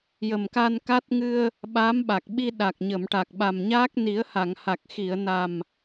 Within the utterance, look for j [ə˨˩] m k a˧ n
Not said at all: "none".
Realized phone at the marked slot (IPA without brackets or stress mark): ə˨˩